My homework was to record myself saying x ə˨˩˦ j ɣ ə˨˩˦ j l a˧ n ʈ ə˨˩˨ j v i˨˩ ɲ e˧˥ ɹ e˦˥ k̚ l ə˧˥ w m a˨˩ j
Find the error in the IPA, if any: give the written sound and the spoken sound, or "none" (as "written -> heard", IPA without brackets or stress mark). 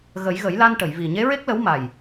x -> ɣ